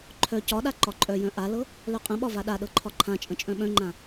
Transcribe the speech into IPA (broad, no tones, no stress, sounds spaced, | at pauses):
ǃʰ œ c ɒ ɗ a ǃ ɒ ǃʼ œ j œ̃ ʔ a l ɤ | l œ qʼ ə̃ ɓ ɒ v a ɗ a ɗ ɤ ǃʰ ɒ ǃʰ ã t͡ʃʼ ə̃ t͡ʃʼ œ̃ ɓ œ̃ ŋ͡ǃ ã